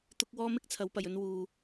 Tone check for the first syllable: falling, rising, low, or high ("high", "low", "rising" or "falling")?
high